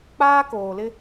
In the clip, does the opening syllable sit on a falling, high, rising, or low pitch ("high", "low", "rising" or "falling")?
high